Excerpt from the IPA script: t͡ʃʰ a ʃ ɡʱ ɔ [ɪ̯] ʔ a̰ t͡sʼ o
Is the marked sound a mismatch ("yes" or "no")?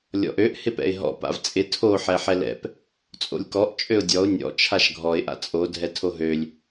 no